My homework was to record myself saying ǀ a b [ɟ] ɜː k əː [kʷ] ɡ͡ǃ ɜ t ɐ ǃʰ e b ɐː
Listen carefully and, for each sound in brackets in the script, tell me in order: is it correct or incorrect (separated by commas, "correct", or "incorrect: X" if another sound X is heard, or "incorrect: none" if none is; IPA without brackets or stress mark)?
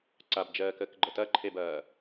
incorrect: d͡ʒ, incorrect: k